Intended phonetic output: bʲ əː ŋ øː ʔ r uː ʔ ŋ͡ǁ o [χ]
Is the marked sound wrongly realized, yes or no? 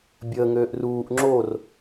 yes